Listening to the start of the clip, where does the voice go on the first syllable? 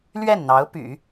falling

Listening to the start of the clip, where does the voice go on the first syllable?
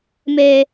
high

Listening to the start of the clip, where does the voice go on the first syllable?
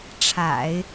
low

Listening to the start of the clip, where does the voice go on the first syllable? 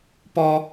low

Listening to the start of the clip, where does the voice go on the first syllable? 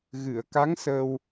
low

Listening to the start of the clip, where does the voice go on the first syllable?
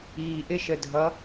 low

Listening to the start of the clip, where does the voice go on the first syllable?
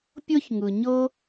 high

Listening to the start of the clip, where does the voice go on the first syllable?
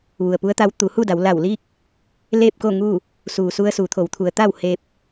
low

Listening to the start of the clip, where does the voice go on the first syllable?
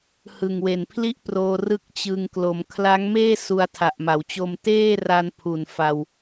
low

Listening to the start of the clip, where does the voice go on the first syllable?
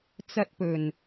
high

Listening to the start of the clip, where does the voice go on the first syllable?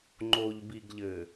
low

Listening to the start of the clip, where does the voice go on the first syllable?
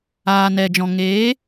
low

